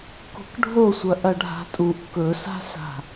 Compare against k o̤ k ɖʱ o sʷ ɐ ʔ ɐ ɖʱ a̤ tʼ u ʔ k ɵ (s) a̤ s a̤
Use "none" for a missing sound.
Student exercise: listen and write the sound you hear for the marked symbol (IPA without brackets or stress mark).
s